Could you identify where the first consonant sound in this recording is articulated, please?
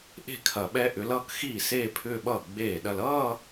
glottal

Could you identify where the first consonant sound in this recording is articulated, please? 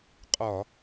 uvular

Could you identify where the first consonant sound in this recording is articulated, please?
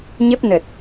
palatal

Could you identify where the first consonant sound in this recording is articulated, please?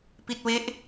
labial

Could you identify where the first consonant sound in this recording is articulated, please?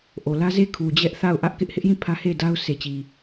glottal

